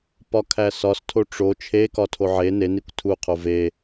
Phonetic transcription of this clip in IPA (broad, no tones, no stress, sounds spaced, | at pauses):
p ɒ kʰ æ s ɒ s tʰ o ʈ͡ʂ o t͡ʃʰ e k ɒ tʰ o ʕ e n e n i kʷ tʰ u qʰ o v e